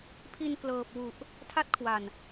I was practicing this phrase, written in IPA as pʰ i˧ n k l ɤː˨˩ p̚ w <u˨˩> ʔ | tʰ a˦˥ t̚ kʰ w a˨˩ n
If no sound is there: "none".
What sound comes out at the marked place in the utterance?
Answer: u˨˩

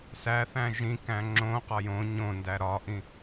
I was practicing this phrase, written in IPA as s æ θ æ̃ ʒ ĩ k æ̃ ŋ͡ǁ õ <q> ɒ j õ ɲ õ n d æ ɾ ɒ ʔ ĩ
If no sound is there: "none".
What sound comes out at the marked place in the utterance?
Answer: q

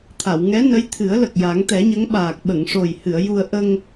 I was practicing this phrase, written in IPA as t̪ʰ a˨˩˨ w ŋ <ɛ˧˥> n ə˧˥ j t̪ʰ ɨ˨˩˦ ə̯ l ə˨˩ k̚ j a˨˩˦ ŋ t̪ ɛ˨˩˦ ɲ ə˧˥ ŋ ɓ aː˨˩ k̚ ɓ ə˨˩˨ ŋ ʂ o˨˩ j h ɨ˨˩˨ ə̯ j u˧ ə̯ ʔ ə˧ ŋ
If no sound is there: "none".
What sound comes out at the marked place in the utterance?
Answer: ɛ˧˥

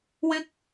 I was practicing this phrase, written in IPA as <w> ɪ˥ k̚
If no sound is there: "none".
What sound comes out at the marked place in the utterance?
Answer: w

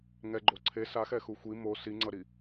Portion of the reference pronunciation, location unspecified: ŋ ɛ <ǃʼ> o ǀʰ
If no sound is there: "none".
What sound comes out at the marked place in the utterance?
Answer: ɡ͡ǃ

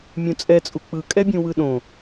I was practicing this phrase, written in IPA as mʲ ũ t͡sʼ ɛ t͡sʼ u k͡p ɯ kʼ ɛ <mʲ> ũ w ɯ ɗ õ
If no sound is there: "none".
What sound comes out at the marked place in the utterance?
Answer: bʲ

